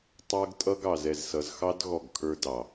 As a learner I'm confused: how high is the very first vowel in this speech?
mid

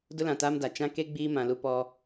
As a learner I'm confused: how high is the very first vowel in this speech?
high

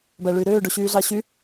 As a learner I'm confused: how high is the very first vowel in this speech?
low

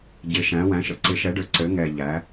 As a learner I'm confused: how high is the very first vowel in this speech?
high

